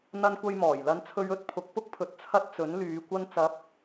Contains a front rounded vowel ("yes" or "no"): yes